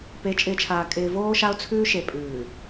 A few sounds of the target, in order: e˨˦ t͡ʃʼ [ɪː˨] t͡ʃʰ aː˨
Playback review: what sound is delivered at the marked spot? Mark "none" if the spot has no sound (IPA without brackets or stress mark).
ɪː˨